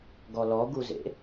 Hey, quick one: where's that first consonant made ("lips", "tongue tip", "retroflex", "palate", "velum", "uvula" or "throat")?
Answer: velum